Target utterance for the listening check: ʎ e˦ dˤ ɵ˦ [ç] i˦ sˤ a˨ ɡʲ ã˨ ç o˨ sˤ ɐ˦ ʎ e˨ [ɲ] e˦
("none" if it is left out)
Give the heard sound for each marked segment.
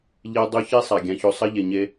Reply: ç, ɲ

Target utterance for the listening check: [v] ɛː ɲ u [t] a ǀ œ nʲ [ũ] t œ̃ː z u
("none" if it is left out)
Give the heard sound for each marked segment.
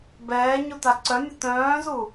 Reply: b, t, u

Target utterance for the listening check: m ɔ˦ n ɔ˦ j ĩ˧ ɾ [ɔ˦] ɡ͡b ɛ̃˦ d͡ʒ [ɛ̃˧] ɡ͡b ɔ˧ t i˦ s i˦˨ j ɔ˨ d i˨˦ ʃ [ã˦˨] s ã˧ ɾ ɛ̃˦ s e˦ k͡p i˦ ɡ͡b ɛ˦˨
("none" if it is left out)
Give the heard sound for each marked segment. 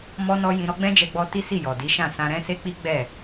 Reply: ɔ˦, ɛ˧, ã˦˨

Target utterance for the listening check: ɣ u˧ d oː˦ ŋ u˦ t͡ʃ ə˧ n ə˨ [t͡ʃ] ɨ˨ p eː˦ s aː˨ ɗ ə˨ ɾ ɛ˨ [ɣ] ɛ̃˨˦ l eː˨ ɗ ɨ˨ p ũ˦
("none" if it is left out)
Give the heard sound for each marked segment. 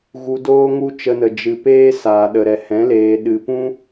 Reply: d͡ʒ, h

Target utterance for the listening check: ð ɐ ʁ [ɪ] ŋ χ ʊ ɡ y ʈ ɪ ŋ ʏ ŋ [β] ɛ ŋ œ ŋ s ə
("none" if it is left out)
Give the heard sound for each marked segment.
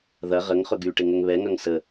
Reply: ə, β

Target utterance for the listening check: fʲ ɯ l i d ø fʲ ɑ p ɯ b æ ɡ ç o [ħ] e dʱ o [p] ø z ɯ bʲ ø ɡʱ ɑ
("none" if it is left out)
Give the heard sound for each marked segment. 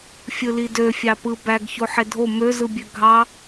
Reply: ħ, m

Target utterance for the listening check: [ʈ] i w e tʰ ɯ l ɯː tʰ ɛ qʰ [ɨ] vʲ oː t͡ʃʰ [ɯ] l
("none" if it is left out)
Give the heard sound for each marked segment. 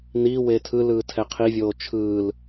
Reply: n, i, ɯː

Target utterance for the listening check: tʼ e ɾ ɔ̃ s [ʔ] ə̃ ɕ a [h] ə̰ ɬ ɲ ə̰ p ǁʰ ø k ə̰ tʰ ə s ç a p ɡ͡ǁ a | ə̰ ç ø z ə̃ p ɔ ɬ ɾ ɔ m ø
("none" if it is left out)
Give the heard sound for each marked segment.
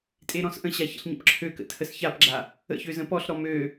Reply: ʔ, ç

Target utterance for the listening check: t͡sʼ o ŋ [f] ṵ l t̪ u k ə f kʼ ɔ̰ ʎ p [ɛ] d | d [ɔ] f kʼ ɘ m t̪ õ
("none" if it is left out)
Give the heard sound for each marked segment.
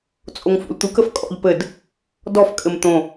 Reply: f, ɘ, ɔ

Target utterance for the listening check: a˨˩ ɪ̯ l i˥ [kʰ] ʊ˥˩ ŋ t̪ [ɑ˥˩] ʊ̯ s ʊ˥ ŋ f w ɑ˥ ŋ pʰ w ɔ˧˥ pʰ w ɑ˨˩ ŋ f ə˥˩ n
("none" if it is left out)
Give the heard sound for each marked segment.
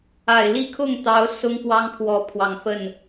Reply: kʰ, ɑ˧˥

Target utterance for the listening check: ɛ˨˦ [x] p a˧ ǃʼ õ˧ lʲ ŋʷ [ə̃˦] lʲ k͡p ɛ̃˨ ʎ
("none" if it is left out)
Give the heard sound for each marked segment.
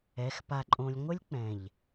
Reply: x, ə˦

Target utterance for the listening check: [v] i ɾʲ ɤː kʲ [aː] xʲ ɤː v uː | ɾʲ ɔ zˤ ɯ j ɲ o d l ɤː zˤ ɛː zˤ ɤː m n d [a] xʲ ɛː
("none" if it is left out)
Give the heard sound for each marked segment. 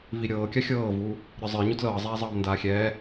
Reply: v, a, aː

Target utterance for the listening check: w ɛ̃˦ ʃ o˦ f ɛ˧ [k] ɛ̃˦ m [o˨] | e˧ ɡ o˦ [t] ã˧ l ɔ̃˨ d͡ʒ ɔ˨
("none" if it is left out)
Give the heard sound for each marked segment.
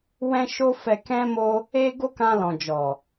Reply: k, o˦, k

